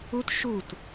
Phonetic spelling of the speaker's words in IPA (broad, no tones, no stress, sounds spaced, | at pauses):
u t ʃ u t